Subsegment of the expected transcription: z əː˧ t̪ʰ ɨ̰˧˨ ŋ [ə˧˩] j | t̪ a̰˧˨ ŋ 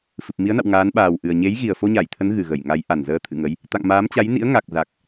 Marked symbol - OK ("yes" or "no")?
no